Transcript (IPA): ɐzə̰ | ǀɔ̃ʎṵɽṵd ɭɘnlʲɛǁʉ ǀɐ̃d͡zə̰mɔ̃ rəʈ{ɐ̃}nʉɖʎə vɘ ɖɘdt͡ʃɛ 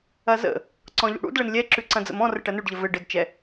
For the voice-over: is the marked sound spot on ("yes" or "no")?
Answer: no